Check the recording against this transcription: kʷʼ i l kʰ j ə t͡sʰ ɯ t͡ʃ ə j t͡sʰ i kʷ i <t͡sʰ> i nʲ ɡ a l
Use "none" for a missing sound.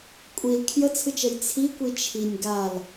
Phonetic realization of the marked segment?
t͡ʃʰ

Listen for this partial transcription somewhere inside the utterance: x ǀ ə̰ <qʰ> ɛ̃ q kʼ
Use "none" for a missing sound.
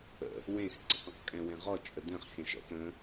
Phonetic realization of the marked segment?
q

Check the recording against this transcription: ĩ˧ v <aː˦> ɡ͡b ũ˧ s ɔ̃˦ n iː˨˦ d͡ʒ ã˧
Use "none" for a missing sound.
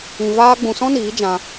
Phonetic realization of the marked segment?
aː˦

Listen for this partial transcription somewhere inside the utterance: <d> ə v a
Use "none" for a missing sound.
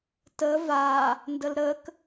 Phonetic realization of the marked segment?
t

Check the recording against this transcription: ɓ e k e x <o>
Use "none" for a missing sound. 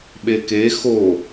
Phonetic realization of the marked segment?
o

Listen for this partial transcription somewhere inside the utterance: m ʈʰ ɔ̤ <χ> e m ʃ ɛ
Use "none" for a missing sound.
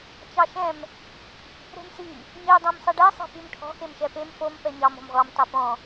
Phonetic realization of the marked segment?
x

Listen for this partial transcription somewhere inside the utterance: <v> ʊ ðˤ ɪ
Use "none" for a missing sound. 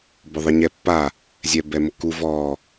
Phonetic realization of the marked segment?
b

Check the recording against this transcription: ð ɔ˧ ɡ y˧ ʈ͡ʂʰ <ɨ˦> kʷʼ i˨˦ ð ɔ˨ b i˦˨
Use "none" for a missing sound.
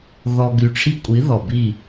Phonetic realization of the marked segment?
i˦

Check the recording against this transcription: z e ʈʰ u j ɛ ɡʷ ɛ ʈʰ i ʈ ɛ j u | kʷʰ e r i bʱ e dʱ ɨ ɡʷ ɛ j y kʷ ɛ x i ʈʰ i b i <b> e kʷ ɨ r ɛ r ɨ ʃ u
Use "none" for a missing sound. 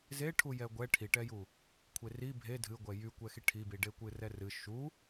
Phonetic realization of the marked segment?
ɖ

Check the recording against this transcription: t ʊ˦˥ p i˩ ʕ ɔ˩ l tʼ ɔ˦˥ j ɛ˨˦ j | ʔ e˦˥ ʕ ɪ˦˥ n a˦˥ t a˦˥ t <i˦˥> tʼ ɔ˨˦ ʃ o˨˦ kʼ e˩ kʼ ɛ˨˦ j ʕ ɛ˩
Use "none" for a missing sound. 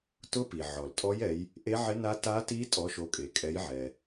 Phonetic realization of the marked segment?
i˦˥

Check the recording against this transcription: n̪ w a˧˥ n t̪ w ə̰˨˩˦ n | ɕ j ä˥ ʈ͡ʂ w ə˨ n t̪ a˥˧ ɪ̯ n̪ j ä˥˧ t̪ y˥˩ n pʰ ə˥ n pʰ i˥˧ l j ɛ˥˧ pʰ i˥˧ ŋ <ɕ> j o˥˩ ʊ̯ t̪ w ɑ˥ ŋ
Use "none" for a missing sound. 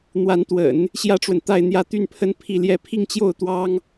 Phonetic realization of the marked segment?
t͡ɕ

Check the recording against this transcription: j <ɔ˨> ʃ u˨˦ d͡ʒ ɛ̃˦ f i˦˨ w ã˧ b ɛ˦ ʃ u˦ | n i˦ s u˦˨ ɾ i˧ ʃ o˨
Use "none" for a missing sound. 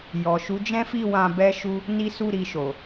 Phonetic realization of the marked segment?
ɔ˨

